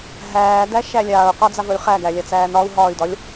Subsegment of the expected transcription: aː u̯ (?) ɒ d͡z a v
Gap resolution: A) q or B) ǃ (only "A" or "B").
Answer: A